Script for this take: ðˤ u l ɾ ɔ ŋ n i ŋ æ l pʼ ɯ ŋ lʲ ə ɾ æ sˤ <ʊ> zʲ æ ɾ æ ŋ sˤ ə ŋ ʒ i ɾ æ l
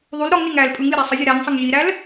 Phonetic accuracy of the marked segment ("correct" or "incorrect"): incorrect